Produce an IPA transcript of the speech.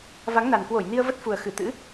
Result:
v a˨˦ ŋ n a˨˩ n k w o˧˩ j n i˧ ə̯ v ə˦˥ t̚ f u˨˩ ə̯ x ɨ˧˩ t̪ ɨ̰˧˥

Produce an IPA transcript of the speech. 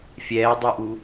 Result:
fʲ ɛː dˤ u ʔ u

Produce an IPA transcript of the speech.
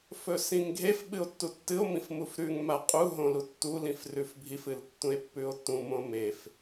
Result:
f ɵ s ĩ ŋ ɡʱ e f ɓ ɨ o̯ tː u tː ɨ o̯ m ĩ f m u f ɾ ʉ ŋ m a qʼ u ɦ õ l u tː u l ĩ f r ʉ f bʱ i f ɨ l tː ũ e̯ pː ʉ o̯ tː ũ m õ m e f

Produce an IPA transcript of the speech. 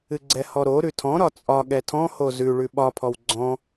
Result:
ɨ ɡ͡ǀ ɛ h ɔ ɾ o ɾ ʉ tʰ ɔ̃ ɾ ɒ t͡sʼ ɒ ɠ ɛ tʰ ɔ̃ h o z ʉ ɭ ʉ ɓ ɒ pʰ ɔ w ɡ͡ǀ ɔ̃

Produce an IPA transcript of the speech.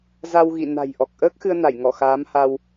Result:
z a˧ w ɣ ḭ˧˨ n a̤˨˩ j ʔ ɔ˨˩ k̚ ʔ əː˦˥ k̚ x ɨ˧ ə̯ n a˧˩ j ŋ ɔ˧˩ x aː˨˦ m h a˧ w

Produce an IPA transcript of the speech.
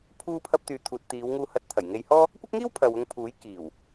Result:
pʰ uː˧ pʰ ɐ˧ p̚ t̪ yː˨ t̪ʰ uː˨ t̚ t̪ iː˨˧ w ŋ uː˧ h ɐ˧ t̚ t̪ʰ ɐ˨˩ j ŋ e˧ j h ɔː˥ | kʷ ɐ˥ k̚ ŋ iː˥ w pʰ ɐ˨ w ʊ˧ ŋ pʰ uː˨˥ j k iː˨˩ w

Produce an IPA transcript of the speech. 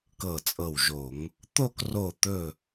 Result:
k ɤ˧˩ t͡sʼ ɤ˧˩ w ʒ o˧˩˧ ŋ | t̪ o˥˧ k r o˧˩ t̪ ɵ˧˩

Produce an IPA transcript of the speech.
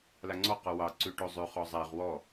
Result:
l a ŋ͡ǀ ɔ q ɔ w ɑ ǀ ʉ ʈ o zˤ ʉ χ ɔ zˤ æ ʁ w ɔ

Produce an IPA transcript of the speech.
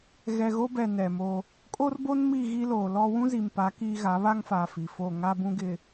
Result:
ɣ ɛ˨ ɣ o˦ b ɛ˨ n ɛ˨ m o˦ | kʼ o˦ r b o˦ n m i˦˨ ɣ i˦ l oː˨ l ɔ˦ w ũ˦ z i˨ m p a˨˦ k iː˦ ɣ a˨˦ β a˦ ŋ f aː˨ f i˨ f o˦˨ ŋ a˦ b ũ˦ ɡ ɪ˨

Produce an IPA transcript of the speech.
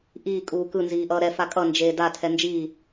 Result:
ʔ iː kʼ uː k ɯ n z iː ʔ ʌː ɾ ɛ f a kʼ ʌ n d͡ʒ eː d a tʰ ɛ n d͡ʒ iː

